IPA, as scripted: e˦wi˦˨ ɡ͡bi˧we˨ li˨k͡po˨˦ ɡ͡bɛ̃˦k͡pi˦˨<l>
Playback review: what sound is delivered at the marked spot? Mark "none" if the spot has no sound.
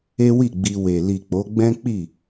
none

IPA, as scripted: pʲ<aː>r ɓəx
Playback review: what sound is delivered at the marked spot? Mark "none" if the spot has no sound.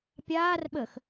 aː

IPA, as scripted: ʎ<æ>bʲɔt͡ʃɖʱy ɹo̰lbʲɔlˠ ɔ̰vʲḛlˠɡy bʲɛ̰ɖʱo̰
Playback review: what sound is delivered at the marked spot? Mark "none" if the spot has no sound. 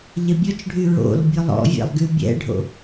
ɛ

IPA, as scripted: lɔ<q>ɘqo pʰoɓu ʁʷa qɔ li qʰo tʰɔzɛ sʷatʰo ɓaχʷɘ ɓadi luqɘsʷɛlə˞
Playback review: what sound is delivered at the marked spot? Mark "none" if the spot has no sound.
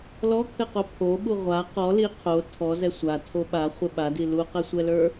kʰ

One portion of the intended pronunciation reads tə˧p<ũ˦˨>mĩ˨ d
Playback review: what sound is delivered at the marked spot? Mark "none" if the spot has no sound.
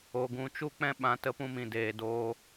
ũ˧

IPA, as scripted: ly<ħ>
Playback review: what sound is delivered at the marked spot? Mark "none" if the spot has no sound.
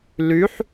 ħ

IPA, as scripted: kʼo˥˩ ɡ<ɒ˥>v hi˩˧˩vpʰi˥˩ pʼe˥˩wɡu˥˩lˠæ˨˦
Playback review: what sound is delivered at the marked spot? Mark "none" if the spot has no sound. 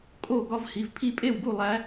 ɒ˥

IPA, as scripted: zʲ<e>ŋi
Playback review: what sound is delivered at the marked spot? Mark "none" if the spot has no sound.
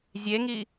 e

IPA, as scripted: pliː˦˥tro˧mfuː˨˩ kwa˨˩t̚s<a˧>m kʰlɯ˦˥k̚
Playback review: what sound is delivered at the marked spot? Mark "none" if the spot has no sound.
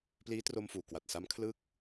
a˦˥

